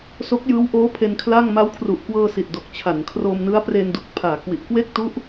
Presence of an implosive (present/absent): absent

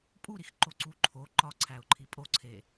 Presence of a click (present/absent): present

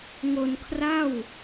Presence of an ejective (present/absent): absent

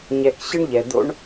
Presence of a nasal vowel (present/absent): absent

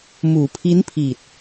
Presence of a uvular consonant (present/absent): absent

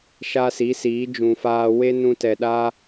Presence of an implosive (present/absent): present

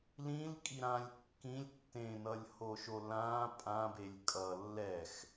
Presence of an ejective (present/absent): present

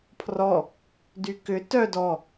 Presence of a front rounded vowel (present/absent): present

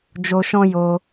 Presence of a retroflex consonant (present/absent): absent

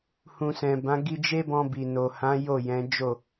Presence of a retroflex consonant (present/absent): absent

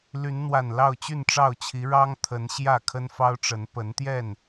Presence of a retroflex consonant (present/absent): present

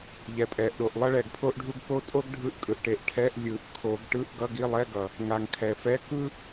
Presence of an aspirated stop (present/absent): present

